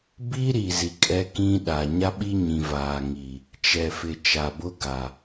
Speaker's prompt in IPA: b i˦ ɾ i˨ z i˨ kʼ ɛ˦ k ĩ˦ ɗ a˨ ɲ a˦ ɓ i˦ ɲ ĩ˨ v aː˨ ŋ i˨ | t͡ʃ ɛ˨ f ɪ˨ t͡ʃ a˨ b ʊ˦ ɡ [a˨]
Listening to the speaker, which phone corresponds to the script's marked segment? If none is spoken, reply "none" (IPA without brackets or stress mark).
a˨